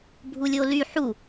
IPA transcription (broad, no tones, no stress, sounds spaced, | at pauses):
bʱ u lʲ o l y ħ u